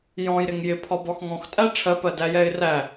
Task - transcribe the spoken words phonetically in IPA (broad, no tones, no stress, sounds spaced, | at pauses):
j ɔ̃ j ɾ ɪ ŋ j ɪ pʰ ɒ b ɒ x ŋ ɔ̃ x tʼ æ ʈ͡ʂʰ ɜ p ɜ d æ j ɛ ɪ̯ r æ